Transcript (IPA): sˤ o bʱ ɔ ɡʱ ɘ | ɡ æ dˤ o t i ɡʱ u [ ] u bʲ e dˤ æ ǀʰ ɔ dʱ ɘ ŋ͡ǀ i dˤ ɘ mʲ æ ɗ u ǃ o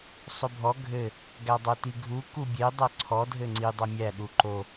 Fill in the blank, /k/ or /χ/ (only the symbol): k